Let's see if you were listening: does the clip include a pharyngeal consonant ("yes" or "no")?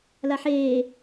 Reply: yes